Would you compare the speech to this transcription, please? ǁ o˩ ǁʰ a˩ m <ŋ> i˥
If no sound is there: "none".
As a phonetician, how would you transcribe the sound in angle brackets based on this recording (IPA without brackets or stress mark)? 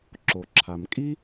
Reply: kʼ